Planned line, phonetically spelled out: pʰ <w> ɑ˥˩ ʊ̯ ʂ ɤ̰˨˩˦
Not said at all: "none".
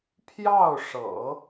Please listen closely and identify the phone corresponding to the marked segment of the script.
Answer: j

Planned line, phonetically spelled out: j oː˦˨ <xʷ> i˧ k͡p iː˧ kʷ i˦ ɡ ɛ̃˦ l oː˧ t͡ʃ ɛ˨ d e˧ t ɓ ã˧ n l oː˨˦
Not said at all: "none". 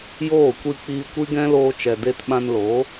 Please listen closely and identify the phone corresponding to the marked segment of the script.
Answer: kʷ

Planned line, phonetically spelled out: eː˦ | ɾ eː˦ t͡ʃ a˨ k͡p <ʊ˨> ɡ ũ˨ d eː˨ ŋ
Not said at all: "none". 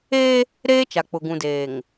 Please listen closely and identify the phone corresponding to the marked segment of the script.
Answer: ʊ˨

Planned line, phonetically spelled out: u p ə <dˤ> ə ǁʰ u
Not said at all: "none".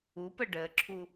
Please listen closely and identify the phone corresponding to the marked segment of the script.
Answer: ɖ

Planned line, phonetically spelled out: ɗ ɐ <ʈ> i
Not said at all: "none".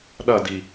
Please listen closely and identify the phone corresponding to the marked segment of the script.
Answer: d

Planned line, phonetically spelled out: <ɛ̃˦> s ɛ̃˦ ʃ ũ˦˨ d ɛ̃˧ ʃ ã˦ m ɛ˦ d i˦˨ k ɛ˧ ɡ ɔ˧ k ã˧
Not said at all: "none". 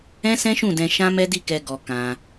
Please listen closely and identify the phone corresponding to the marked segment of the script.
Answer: ɛ̃˦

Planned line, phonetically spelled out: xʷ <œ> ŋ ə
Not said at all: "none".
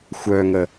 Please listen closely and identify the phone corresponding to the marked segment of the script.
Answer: œ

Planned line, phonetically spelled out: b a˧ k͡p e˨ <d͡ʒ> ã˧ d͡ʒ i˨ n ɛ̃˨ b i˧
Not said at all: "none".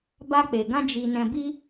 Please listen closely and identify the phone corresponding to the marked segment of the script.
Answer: ɡ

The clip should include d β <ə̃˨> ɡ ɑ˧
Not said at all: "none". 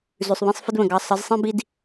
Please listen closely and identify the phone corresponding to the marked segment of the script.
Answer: ə̃˨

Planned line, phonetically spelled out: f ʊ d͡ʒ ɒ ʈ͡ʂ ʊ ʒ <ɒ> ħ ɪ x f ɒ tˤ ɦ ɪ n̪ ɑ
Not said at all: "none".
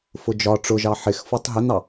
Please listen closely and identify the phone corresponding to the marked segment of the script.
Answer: ɑ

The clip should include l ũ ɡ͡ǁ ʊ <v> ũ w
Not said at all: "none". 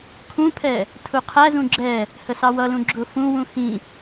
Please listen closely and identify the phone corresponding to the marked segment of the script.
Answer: f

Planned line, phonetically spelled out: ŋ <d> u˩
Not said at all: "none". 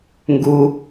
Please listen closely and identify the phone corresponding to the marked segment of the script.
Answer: ɡ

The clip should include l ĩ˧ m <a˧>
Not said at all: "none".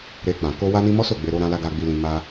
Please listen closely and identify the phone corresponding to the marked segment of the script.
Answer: a˧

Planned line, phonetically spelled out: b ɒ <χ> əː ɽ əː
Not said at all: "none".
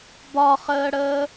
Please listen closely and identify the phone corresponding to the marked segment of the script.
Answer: χ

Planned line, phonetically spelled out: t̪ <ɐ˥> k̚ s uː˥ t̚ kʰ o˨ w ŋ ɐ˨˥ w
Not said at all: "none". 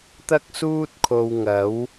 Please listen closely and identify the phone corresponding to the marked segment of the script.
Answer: ɐ˥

